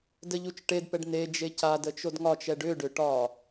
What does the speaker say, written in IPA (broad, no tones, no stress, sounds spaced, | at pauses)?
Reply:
d ə ʎ u t͡ʃ ʈ e d p ɛ ɖ n e d͡ʒ e c a d ə t͡ʃ o d ŋ ɒ t͡ʃ ɛ ɖ ʏ ɖ ʏ ʈ ɒ